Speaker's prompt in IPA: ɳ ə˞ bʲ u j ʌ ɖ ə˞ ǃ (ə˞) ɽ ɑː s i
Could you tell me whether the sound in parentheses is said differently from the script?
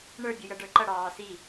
yes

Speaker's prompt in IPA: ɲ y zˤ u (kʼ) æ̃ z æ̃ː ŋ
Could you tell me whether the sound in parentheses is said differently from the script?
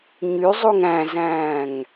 yes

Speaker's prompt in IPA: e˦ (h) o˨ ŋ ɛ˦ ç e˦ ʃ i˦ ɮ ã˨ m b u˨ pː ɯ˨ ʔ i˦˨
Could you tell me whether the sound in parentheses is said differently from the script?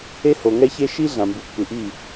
no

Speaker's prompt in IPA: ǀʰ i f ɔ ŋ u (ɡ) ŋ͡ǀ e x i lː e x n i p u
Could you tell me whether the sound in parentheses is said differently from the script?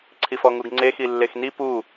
no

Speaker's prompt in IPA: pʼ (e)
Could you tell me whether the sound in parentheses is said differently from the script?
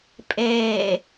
yes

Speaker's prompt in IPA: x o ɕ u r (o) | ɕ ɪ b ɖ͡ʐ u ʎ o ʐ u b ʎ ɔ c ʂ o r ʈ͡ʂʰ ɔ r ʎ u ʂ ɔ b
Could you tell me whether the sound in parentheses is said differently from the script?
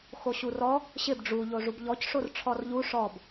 yes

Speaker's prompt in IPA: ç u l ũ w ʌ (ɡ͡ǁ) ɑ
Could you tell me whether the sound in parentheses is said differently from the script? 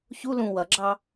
no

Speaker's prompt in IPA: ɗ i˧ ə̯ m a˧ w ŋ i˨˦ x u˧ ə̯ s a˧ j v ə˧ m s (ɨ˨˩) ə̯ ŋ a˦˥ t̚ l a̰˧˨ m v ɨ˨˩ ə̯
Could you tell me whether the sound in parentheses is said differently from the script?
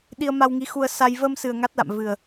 no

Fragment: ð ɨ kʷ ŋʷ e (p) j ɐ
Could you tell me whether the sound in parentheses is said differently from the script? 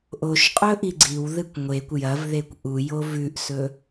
yes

